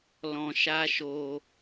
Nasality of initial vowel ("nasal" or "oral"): nasal